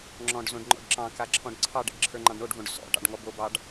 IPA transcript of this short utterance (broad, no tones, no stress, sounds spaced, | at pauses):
ŋ͡ǁ ɔ̃ ɖ z õ ɖ ŋ͡ǃ ɔ̰ ɖ ǁ ɑ̃ k a ǁʰ ɔ̃ ɖ ǀʰ ɑ ɖ ḛ ɖ ǁʰ ə˞ ŋ͡ǃ ɑ̃ ɖ ɳ o ɖ v õ ɖ s ɔ̰ ʈ ɑ̰ ɖ ŋ ɔ b o b ɑ ɖ